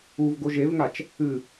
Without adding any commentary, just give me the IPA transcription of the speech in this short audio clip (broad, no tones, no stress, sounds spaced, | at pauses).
u v ɡ o ʒ e v ŋ a t͡ʃ | ɨ